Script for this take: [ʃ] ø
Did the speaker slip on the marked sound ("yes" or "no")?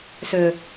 yes